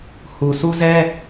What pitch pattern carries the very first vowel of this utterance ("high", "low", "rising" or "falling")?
low